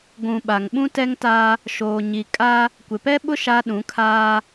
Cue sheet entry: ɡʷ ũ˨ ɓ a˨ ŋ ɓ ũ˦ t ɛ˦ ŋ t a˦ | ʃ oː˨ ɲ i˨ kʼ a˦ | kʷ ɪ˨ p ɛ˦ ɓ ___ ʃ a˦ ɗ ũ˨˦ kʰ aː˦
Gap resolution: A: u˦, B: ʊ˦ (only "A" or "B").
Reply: B